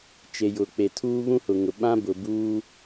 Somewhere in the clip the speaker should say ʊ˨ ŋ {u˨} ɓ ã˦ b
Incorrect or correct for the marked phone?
incorrect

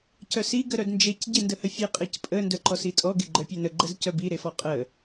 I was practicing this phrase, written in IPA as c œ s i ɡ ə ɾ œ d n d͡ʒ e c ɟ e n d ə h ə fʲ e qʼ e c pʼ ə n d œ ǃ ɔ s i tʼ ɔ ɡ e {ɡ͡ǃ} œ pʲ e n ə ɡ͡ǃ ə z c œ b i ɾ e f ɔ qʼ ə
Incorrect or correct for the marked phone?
correct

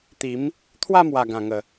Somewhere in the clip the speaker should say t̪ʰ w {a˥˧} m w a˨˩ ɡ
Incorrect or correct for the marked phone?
correct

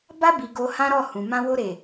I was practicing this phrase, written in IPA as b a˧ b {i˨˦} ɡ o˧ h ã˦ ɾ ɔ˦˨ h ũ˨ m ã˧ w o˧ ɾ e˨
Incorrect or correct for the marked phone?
incorrect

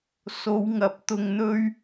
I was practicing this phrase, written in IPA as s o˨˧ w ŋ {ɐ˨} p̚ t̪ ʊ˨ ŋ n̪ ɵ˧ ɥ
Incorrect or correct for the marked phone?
incorrect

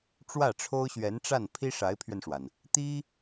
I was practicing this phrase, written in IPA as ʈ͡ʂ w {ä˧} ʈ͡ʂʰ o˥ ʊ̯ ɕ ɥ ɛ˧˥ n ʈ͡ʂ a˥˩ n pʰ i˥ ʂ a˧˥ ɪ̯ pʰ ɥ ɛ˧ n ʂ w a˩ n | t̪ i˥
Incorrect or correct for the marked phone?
incorrect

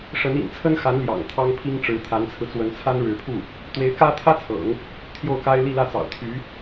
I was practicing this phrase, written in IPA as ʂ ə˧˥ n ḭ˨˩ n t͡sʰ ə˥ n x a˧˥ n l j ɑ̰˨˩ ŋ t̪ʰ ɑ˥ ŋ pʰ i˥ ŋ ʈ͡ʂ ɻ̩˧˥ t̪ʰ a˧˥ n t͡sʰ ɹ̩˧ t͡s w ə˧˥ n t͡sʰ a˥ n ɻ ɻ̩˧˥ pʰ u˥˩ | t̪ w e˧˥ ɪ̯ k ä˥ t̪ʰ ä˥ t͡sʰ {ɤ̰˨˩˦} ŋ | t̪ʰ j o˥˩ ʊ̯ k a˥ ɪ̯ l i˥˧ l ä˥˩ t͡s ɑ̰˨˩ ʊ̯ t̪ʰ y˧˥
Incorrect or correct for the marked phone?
correct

